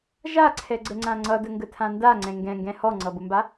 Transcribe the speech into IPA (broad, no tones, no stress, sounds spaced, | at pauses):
ʒ a ǀʰ ɛ ɡ͡ǀ ə ŋ͡ǀ ã ŋ͡ǀ ʌ d ə ŋ ɡ ə tʰ ã n d a ŋ͡ǀ ɛ̃ ŋ ɡ ɛ̃ ŋ ɡ ɛ̃ h ɔ ŋ͡ǀ ʌ b ʊ m b a